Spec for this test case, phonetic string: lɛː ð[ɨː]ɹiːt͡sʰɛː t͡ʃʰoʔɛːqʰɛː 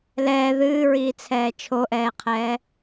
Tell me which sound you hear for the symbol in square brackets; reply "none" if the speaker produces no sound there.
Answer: ɨː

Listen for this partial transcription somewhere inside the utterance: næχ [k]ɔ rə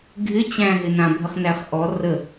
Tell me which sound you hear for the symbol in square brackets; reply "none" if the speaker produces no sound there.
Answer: ʔ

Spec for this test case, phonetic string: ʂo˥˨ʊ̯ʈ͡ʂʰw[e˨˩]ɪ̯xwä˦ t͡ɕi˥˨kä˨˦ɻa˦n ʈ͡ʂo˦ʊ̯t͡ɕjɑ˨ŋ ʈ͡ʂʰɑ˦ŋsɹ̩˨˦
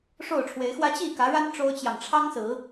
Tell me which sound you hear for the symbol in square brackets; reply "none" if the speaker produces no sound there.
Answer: e˨˦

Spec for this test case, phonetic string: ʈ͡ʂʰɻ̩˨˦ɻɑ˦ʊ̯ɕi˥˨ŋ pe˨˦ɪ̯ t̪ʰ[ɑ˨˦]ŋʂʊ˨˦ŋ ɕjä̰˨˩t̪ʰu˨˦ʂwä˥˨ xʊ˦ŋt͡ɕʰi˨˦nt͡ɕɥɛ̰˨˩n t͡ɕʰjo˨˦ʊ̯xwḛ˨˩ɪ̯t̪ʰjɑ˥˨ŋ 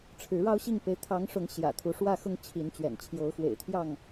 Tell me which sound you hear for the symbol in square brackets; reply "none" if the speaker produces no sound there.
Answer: ɑ˨˦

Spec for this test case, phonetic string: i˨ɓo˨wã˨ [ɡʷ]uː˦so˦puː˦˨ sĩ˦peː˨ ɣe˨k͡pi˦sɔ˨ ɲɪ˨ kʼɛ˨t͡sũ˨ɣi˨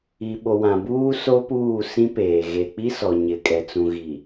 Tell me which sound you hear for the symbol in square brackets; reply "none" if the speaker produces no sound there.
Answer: b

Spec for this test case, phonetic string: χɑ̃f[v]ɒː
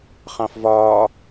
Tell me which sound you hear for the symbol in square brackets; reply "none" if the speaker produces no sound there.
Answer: v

